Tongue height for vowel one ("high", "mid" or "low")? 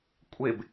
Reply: mid